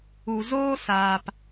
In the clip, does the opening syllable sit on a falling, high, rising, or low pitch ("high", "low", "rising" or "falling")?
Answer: low